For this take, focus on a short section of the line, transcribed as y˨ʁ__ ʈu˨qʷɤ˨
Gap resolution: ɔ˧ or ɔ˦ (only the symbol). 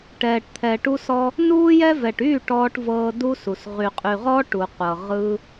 ɔ˦